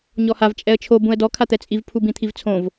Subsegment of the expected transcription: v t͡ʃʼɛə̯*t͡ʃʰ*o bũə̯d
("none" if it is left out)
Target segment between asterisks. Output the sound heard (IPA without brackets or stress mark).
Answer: t͡ʃʰ